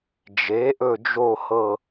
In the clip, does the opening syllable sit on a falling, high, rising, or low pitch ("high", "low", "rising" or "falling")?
rising